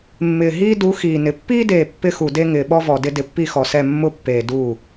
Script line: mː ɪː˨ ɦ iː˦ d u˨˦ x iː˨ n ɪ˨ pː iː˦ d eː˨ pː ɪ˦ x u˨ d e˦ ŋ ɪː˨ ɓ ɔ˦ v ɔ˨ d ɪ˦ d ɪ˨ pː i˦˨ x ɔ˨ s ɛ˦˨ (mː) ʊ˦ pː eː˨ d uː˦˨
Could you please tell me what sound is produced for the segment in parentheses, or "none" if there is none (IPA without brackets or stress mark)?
mː